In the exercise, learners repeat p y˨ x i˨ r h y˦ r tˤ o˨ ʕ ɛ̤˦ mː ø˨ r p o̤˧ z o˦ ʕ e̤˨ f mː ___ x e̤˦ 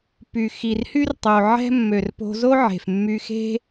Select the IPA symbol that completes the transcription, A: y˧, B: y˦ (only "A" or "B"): A